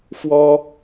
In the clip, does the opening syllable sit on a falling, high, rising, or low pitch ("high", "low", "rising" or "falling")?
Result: high